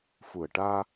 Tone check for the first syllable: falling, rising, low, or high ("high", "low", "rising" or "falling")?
low